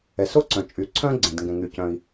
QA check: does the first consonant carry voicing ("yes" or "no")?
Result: no